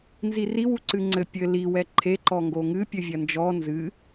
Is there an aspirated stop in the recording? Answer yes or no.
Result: yes